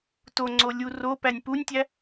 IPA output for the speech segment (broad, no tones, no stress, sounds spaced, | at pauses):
t o ŋ͡ǀ o lʲ u r o p æ nʲ p u nʲ tʲ æ